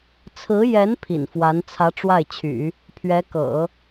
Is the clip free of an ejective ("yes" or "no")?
yes